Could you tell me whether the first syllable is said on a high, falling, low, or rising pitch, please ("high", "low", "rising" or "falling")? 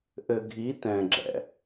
low